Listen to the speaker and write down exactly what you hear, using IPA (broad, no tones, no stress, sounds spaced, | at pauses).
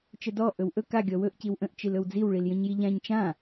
t͡ʃ ə d ɔ ʔ ɵ w ʔ ɵ k a ɡʲ ɔ w ɵ ʔ c i w ʔ ə̃ ʔ t͡ʃ i l ɵ w d͡z i w ɭ i l j ə̃ ɲ j i ʎ ã ɲ t͡ʃ ã